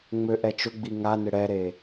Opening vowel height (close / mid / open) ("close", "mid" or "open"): mid